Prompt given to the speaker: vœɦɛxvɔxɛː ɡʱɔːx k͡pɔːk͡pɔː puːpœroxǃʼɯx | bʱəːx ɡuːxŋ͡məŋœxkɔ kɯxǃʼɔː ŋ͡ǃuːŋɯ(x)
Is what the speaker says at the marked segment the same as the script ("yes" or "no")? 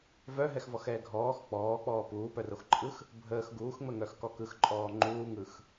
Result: yes